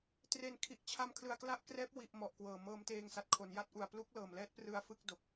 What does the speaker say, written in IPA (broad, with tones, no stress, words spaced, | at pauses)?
tre˨˩nkʰi˨˩ʔ t͡ɕʰa˧m kʰlɯ˨˩a̯kla˥˩ʔkrɛː˦˥p̚ wi˨˩ʔ mɔ˨˩ʔkwɤː˨˩ mɤː˧mteː˧ŋsa˨˩t̚kʰo˩˦n ja˦˥t̚ʔu˨˩a̯ plu˦˥k̚lɤː˨˩mlɛː˦˥t̚prɯ˧a̯ fɯ˥˩k̚do˨˩k̚